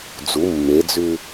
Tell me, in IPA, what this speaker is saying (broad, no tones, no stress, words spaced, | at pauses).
d͡zu mːed͡zʉ